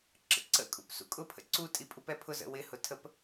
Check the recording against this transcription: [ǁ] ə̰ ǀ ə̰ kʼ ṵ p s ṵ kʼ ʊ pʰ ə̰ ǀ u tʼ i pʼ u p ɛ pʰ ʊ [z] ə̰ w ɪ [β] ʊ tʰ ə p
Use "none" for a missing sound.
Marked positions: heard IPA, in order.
ǁ, z, h

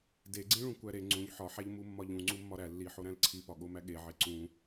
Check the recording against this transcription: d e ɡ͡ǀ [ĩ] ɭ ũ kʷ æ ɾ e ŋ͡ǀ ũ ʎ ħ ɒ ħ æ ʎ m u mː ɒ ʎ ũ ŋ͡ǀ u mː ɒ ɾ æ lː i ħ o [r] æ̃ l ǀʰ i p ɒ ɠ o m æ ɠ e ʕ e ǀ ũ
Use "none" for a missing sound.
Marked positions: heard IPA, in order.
ĩ, ɾ

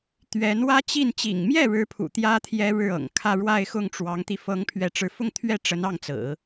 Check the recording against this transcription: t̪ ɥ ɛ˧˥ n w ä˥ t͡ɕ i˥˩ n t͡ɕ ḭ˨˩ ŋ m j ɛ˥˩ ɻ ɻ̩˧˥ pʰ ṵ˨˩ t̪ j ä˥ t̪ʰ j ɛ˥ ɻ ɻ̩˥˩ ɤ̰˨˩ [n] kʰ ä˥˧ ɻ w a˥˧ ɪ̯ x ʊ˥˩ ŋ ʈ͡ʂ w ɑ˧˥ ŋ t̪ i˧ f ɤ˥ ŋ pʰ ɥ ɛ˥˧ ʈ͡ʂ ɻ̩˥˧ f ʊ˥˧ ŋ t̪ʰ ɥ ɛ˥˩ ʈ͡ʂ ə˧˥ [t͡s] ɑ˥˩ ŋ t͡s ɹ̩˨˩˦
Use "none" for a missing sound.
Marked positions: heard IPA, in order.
ŋ, n

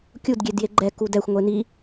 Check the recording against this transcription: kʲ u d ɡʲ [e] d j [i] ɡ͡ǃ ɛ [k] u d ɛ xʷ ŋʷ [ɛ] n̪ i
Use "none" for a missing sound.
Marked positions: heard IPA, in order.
e, e, k, e

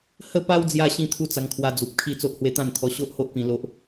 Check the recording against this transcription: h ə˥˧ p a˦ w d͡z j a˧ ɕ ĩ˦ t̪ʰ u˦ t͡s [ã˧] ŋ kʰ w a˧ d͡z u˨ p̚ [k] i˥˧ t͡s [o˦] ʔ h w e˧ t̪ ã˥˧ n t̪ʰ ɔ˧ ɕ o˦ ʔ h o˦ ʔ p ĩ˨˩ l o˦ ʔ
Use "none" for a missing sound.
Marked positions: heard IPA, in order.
a˧, kʰ, o˦

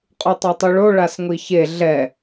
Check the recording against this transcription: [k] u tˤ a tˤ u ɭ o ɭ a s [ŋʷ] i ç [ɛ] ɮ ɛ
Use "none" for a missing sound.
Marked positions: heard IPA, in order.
qʼ, ŋʷ, e

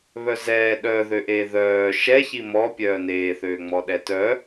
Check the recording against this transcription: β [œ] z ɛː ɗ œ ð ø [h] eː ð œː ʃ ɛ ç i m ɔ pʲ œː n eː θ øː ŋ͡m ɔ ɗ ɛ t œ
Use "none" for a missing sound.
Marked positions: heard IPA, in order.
œ, ʔ

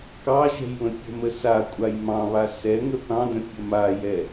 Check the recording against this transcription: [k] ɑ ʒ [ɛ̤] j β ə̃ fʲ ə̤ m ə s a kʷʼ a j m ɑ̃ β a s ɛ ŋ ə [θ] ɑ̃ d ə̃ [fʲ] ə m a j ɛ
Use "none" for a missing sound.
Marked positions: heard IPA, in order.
k, ɛ̤, θ, fʲ

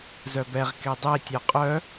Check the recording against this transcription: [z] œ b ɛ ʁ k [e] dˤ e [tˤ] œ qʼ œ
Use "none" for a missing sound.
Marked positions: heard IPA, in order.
z, e, tʲ

